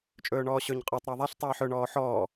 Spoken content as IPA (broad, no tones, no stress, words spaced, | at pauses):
t͡ʃʼɵːɳɔːɕɵɲ qʼɔtˤ ɾaðˤaɬ tˤɜːħɵ ɳɔːħɔː